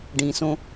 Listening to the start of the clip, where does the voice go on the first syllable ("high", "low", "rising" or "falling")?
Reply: low